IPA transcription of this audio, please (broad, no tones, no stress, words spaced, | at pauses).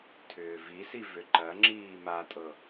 tʰʏːvisi vʏǃɐŋ͡ǁiː matʼɤ